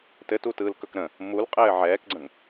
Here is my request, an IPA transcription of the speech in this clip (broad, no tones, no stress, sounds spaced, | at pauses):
t ɘ t u t ɯː l k ɵ k ɾ ə̃ | m u l qʼ ɘː ʕ ɛː k ɡ͡ǀ ə̃ ŋ